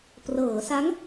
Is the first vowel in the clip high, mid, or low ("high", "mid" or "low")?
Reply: mid